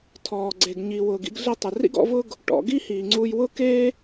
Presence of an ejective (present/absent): absent